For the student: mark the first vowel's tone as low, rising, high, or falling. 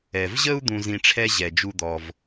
low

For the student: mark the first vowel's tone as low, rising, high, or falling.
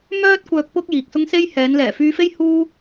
high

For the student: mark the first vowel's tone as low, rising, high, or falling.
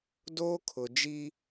high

